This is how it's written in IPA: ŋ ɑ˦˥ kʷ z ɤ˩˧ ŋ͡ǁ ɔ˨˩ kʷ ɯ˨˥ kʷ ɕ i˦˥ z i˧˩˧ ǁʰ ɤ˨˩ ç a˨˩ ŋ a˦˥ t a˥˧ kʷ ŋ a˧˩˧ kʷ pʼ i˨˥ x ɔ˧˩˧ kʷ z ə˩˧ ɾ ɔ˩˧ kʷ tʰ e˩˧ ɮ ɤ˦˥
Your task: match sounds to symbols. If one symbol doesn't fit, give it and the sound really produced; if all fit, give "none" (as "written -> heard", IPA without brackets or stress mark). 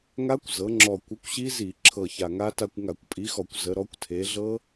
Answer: ɑ˦˥ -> a˦˥